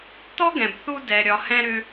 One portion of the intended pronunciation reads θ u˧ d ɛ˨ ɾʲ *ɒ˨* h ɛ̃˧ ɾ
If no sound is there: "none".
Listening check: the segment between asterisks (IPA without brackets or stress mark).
ɒ˨